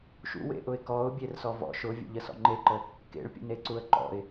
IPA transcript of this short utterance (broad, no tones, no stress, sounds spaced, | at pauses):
ʃ ṵ w ḛ ʔ ʊ ɪ̯ k ɔ ʊ̯ bʲ e r s ɔ v ɔ̰ ʃ ʊ vʲ ə̰ ʎ ə s ɔ̰ ŋ͡ǃ e ǃ ə | k ḛ ɭ pʲ ə̰ n e ǀ u ə̯ ǃ ɔ̰ ɪ̯